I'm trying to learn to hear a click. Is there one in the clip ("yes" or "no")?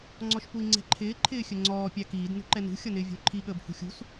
yes